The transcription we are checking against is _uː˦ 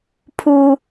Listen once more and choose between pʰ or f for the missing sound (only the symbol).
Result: pʰ